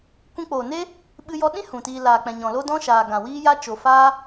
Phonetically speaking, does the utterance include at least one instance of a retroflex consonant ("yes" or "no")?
no